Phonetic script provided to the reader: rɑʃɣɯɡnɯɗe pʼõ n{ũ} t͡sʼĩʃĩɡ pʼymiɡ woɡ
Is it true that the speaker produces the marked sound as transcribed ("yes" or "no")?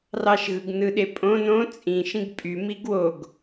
no